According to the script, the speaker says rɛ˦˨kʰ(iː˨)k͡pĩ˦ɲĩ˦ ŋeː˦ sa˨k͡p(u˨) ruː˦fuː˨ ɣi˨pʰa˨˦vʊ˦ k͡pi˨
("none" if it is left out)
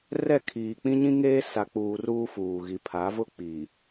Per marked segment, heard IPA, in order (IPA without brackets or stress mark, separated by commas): iː˨, uː˨